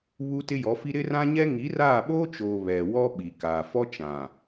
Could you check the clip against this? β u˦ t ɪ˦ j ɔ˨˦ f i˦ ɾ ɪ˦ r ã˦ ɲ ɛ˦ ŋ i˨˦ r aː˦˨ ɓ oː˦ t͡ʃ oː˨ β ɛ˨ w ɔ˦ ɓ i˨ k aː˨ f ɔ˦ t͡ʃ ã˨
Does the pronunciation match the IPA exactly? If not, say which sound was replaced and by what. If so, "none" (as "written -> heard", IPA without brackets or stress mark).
none